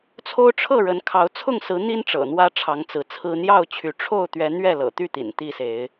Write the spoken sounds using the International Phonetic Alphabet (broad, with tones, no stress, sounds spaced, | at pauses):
t͡sʰ o˦ ʊ̯ ʈ͡ʂʰ ɤ˥˨ ɻ ə˨˦ n kʰ ɑ˨˦ ʊ̯ t͡sʰ ʊ˥˨ ŋ s ɹ̩˨˦ n̪ i˦ n ʈ͡ʂ ɤ̰˨˩ n̪ w ä˦ ʈ͡ʂʰ ɑ˨˦ ŋ t͡s ɹ̩˨˦ t͡sʰ ɹ̩˦ n̪ j ɑ˥˨ ʊ̯ t͡ɕʰ y˨˦ ʈ͡ʂʰ o˥˨ ʊ̯ t̪ ɥ ɛ˨˦ n̪ ɥ ɛ˥˨ l ɤ̰˨˩ t̪ y˥˨ t̪ ḭ˨˩ n t̪ i˥˨ s e˨˦ ɪ̯